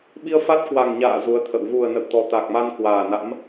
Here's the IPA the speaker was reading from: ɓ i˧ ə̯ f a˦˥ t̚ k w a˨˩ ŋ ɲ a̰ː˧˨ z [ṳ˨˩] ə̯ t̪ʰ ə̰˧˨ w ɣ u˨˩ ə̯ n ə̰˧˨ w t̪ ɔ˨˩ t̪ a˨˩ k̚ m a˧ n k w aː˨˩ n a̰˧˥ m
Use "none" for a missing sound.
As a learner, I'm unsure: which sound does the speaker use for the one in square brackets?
u˨˦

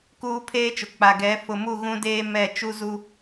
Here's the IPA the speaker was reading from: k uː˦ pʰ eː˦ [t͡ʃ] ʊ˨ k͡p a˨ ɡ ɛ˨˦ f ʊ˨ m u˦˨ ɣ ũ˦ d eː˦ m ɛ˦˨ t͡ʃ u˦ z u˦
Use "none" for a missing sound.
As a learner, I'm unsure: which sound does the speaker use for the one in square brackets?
t͡ʃ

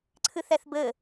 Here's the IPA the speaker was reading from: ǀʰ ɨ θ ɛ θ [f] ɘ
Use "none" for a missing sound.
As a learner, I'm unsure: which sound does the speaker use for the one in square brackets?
b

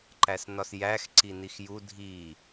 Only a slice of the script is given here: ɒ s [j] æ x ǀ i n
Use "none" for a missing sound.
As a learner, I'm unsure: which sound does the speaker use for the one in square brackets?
j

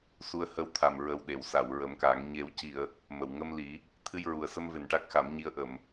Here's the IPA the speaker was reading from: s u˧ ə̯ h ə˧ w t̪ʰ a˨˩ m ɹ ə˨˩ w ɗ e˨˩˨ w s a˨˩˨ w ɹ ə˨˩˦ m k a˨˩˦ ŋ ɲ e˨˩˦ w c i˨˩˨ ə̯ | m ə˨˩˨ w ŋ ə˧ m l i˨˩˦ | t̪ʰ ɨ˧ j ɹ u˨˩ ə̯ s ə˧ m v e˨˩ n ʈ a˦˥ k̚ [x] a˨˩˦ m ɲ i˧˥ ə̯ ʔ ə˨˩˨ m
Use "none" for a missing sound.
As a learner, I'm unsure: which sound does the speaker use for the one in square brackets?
x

